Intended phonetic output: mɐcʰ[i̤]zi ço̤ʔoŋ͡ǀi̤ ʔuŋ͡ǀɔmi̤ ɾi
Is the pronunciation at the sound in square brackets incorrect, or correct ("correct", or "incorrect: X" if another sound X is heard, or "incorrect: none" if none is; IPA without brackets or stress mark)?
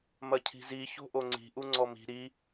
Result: correct